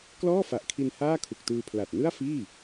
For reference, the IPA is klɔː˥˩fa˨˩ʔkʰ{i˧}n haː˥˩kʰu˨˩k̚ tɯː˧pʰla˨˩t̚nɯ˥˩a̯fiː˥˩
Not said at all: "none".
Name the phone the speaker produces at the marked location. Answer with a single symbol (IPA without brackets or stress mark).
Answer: i˧